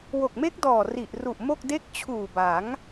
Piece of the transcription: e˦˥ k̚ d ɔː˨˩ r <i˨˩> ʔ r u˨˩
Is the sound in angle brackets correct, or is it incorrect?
correct